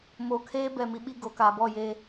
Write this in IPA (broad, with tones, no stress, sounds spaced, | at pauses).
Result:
m oː˨ kʰ eː˦ b ɛ˦˨ m i˨˦ ɓ i˦ ɡ o˨ k aː˨ b ɔ˦˨ j eː˦